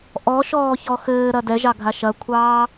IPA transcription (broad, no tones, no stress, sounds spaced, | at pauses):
ʔ ɔ ʃ ɔː ç ɔ x ɘː ɾ ɐ d ɛ ʒ ɑ ɡʱ a ʃ ɐ kʷʰ ɑː